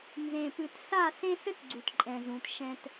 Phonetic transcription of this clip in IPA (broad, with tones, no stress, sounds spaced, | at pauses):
n z ẽ˨ p ɨ˨ t s a˦˨ s ẽ˦ s ɘ˦ t ɡ͡ǀ u˨ t ǃʼ ɛ̃˨ z ũ˨ t ʃ ɛ̃˦ t